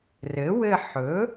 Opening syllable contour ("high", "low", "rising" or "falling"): rising